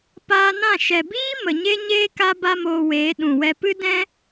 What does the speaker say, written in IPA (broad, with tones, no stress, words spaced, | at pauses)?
paː˧nã˦˨ ʃɛ˨biː˦ mə˨ɲe˦ɲeː˦ ka˦ba˦moː˧weː˨˦ ɗũ˨wɛ˧ pɨ˦dɛ̃˦